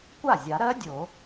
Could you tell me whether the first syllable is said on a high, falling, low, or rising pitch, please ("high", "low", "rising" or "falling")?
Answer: falling